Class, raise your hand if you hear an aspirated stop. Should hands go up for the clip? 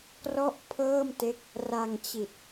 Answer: yes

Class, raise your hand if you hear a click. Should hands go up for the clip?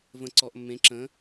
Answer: yes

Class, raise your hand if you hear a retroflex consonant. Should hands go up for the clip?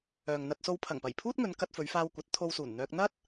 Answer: no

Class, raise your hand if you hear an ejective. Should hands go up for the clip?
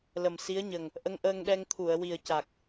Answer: no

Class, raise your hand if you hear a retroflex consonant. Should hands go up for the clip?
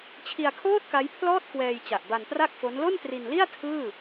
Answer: no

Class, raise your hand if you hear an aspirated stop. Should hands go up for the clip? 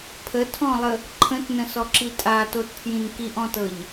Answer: yes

